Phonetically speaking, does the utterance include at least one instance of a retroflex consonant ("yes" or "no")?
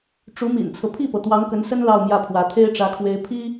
yes